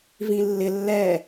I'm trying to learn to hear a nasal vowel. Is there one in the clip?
yes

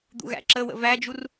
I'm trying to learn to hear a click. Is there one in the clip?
yes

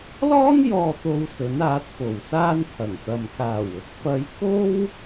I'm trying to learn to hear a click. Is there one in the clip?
no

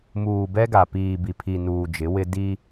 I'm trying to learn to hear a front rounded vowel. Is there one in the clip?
no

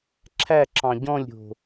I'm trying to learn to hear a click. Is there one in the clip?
yes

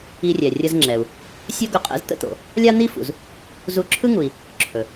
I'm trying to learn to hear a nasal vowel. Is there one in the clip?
no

